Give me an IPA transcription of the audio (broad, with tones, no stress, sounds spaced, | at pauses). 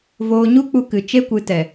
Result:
v oː˧ ɲ u˦ k͡p u˧ k ɨ˨ t͡ʃ e˦ kʷ ɨ˨˦ t ɛ˨